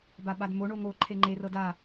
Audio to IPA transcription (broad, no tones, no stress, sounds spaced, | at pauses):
b a ɓ a d m o ɳ o ŋ o ǃʰ e ŋ͡ǃ e r ɤ d a